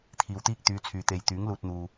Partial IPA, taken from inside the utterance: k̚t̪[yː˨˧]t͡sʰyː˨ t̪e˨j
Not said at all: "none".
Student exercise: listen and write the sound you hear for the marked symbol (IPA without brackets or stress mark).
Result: yː˨˧